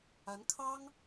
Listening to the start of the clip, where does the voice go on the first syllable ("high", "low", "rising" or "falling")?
rising